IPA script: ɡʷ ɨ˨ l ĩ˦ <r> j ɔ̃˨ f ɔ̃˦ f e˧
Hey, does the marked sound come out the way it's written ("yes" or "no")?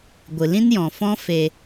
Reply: no